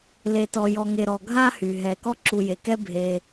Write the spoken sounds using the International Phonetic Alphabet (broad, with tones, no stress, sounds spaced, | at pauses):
l e˨ t ɔ˨ j ɔ˨ ŋ e˨ ɾ ɔ˨ ɡʱ a˦ h y˩ ɦ ɛ˨ k ɔ˥ ǁ u˨ j e˩ k ɛ˥ bʱ e˨